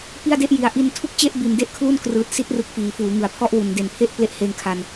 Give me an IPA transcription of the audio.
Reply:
p i˥˩ a̯ d e˥˩ ʔ j i˨˩ a̯ ʔ i˧ n tʰ u˥˩ k̚ t͡ɕ e˥˩ ʔ b i˨˩ n d e˥˩ ʔ kʰ l u˥˩ n k r ɯː˨˩ t̚ s i˦˥ t̚ r ɯ˨˩ k̚ f iː˩˦ f uː˩˦ ŋ ɯ˩˦ a̯ pʰ ɔ˦˥ ʔ w u˩˦ n d e˨˩ n pʰ e˥˩ ʔ p l e˦˥ ʔ h eː˧ ŋ kʰ a˧ n

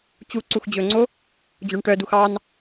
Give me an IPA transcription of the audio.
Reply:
t͡ɕ u ǀ u x d͡ʑ ɵ ŋ͡ǀ o | d͡ʑ o ɳ ʈ œ d u x ɑ n

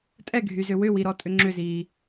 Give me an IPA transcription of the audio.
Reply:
tʼ ɛ ɡʱ y z ʏ w ʏ w i ɾ ɔ tʼ ʏ ŋ͡ǁ ʏ z iː

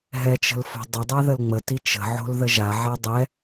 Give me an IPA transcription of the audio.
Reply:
ɦ ɛ t͡ʃ ə̤ l f o̤ dˤ ə dˤ a ð ə l ŋ͡m ə t i t͡ʃ ə̤ ʕ o̤ l ð ə ʒ a ʕ a dˤ ɛ

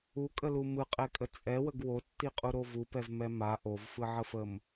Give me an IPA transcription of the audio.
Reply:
u kʼ ə l u m ɯ qʼ ɛ kʼ ə t͡sʼ ɛ w ə ɡ w o tː i qʼ u ɾ o v u p ɛ v m ɛ m a ʔ o v f ɯ ʕ ə f ə m

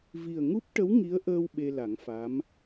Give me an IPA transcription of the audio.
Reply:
v i˨˩ ə̯ ŋ u˦˥ p̚ ʈ ə˧˥ w ŋ i˧˥ ə̯ ʔ əː˧ w ɓ e˧ l a˨˩˦ ŋ f a˧˥ m

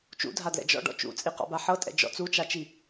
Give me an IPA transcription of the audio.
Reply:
t͡ʃ ṵ dʱ a d l ɛ̰ d͡ʒ ɔ̰ ɖ ɔ̰ t͡ʃ ṵ t͡sʼ i q ɔ̰ b a ħ ɤ tʼ ɛ̰ d͡ʒ ɔ̰ t͡s u t͡ʃ a t͡ʃ i

